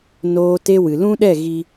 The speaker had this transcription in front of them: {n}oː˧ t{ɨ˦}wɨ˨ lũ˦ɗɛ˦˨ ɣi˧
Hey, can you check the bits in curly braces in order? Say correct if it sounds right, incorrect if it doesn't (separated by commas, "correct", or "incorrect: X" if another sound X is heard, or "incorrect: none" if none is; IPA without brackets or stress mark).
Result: correct, incorrect: e˦